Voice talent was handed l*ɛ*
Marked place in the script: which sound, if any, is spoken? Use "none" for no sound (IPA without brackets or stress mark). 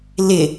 ɪ